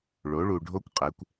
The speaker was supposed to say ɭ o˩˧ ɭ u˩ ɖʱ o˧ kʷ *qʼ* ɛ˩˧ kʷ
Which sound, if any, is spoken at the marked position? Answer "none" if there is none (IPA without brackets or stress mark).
qʼ